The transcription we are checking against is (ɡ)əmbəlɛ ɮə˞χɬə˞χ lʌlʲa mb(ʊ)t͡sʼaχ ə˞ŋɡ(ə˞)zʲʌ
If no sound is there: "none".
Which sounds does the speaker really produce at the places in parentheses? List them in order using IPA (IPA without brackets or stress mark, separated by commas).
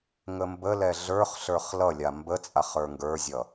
ŋ, ə, ə˞